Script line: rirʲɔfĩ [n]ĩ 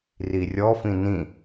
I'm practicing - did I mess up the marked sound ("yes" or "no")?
no